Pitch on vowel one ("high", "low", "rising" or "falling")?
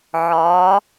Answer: rising